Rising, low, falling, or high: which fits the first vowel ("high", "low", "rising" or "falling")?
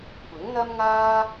rising